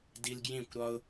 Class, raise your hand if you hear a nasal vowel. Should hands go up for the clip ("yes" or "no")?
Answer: yes